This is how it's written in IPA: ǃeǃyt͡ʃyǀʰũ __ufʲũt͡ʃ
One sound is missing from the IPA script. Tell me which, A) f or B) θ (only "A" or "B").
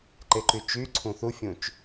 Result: B